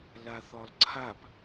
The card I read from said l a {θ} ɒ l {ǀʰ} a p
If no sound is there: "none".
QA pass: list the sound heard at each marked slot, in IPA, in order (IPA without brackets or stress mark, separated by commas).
θ, ǀʰ